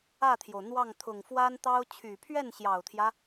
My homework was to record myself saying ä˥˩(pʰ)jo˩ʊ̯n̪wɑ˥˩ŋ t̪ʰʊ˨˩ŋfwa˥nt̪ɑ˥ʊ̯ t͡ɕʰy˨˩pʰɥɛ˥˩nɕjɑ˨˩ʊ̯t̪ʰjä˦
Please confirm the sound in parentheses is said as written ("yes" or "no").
no